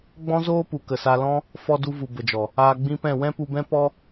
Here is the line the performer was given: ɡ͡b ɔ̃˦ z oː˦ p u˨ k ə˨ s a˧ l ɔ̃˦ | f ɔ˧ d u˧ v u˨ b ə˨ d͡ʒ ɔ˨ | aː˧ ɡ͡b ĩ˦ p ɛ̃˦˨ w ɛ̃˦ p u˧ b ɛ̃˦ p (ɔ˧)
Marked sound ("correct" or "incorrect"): incorrect